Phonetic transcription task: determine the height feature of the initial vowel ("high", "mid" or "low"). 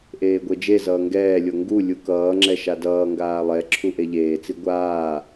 mid